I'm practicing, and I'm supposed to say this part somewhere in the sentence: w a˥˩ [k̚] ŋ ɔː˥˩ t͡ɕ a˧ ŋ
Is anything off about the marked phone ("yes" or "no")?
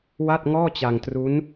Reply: yes